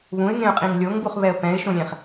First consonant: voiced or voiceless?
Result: voiced